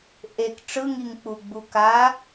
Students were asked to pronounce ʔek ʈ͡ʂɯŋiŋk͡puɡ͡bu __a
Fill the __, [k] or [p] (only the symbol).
k